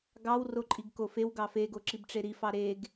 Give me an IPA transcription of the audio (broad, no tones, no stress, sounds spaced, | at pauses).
ɡ ɑ w r o ǃʼ i ɡ k o f e w ɡ ɑ f e ɡ o ǁ i b ʈ͡ʂ e ɾ i f ɑ ɾ e ɡ